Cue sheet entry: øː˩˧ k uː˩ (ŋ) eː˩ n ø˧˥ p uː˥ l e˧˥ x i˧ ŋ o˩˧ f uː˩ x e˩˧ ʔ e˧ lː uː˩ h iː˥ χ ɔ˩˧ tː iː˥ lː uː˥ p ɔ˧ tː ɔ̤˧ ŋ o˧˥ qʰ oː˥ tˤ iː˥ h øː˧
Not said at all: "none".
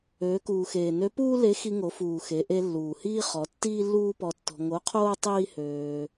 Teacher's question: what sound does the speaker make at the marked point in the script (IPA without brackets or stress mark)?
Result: x